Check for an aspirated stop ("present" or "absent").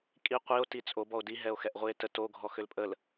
absent